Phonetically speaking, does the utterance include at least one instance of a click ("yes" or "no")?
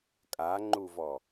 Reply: yes